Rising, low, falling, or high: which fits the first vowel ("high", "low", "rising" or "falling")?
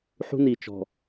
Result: high